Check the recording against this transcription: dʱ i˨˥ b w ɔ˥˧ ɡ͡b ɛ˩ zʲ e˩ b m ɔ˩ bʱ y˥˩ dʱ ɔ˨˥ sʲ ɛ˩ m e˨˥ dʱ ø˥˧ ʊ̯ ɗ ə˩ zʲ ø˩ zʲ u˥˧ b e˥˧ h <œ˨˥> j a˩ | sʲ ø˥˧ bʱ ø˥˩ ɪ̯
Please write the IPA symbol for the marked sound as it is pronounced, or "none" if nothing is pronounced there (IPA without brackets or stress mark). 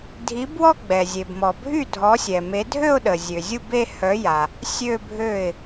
œ˨˥